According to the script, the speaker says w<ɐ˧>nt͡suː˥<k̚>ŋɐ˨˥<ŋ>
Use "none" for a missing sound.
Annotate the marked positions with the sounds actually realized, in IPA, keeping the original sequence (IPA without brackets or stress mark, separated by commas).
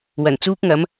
ɐ˨˩, k̚, m